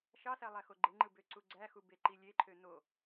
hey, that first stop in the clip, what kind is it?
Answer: click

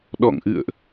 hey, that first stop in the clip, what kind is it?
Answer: implosive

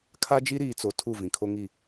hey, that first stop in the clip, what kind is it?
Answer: aspirated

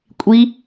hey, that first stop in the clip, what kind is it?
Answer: ejective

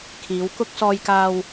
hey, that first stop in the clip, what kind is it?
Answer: aspirated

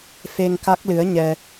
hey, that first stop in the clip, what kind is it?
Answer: plain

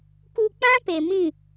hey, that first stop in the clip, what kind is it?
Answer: plain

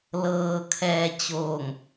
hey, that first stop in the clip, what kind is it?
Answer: aspirated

